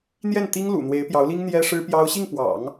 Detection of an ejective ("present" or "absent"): absent